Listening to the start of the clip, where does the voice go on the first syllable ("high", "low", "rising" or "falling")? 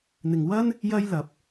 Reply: low